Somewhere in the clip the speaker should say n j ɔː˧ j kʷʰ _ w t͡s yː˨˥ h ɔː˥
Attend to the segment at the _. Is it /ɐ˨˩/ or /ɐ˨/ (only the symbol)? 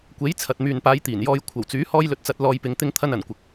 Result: ɐ˨˩